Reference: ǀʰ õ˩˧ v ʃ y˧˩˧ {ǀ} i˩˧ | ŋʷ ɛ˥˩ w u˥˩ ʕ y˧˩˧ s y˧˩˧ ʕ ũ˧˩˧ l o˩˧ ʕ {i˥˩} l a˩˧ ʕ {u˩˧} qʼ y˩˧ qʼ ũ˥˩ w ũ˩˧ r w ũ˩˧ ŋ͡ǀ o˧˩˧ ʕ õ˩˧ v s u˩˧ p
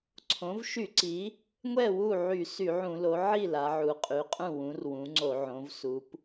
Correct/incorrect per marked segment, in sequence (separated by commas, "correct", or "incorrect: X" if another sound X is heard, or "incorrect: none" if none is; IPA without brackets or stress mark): correct, correct, correct